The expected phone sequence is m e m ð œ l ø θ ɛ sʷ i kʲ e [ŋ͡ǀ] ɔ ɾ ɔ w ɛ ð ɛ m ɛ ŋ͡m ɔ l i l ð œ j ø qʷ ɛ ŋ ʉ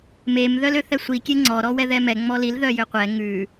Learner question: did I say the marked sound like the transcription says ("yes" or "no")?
yes